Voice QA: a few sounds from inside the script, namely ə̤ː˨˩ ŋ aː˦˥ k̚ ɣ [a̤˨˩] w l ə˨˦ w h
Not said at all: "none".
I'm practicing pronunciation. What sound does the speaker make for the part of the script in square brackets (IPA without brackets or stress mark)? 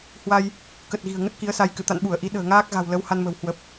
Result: a̤˨˩